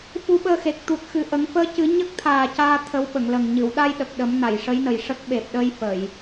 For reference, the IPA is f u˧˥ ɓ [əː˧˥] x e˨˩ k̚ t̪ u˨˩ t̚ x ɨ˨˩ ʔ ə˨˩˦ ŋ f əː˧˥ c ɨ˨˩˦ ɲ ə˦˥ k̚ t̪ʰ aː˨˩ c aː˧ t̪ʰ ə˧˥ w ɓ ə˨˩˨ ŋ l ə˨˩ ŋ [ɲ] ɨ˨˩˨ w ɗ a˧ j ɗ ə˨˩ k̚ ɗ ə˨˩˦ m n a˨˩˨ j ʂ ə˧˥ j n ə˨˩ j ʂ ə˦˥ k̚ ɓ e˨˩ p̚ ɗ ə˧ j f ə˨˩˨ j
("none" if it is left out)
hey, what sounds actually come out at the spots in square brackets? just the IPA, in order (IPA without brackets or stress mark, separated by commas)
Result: əː˧, ɲ